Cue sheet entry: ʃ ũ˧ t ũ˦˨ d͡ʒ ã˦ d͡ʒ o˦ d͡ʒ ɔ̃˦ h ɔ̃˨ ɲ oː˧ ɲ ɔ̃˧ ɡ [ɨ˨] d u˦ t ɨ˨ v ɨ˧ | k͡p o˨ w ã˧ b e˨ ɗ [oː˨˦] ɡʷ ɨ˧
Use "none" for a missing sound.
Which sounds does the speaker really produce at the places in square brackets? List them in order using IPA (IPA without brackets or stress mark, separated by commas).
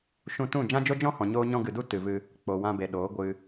ɨ˨, oː˨˦